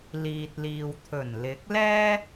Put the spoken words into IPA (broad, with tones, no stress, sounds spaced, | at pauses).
l iː˨ t̚ l iː˨ w t̪ʰ ɵ˨˩ n l ɪ˨˥ k̚ l ɛː˥